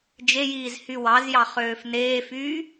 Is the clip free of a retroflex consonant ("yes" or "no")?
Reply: yes